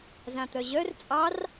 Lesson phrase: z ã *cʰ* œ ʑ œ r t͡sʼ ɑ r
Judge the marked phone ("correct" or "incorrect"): incorrect